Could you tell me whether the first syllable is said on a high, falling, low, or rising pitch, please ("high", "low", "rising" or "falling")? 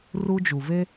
high